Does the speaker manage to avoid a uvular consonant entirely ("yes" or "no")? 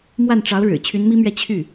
yes